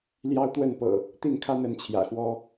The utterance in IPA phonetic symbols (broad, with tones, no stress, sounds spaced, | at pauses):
l j ɑ˦ ʊ̯ t̪ w ə˥˨ n p ɤ̰˨˩ | t̪ i˥˨ n kʰ a˦ n ə˨˦ n t͡ɕʰ j ä̰˨˩ x w ɔ˦